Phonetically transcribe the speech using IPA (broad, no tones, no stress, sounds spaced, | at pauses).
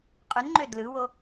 qʼ y n ŋ͡ǃ ø d l ɯ w o